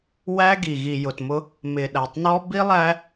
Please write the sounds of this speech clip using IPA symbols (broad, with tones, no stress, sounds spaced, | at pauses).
w æ˦ ɡ i˨ ɣ i˨ j ʊ˨ t m ʊ˦ | m ɪ˨ ɗ æ˨ tˤ n ɔ˦ b i˦ lˠ æ˦